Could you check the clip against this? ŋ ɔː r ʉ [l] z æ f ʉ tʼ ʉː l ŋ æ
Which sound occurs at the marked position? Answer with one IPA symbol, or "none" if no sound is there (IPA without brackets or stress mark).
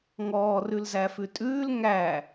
l